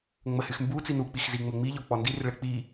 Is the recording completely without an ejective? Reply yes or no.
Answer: yes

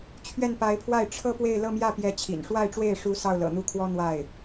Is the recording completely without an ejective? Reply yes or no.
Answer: yes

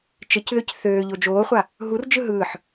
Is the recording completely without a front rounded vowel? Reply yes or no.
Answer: no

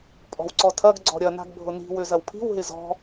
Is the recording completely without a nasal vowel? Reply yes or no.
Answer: yes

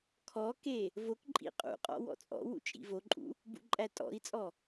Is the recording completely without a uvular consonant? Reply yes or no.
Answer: no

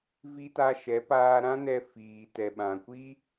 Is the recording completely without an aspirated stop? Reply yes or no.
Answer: yes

